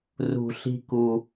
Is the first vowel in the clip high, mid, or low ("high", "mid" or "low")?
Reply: high